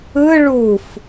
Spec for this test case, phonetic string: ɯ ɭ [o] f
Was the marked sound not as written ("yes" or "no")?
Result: yes